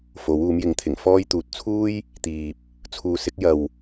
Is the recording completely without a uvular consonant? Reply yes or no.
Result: yes